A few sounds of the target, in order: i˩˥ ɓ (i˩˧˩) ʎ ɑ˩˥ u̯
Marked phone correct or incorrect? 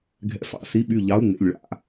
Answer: incorrect